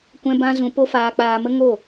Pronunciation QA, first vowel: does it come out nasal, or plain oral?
nasal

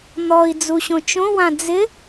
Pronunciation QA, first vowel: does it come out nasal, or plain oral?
oral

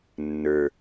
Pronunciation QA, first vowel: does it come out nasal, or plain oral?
oral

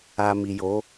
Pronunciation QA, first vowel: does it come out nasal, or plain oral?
oral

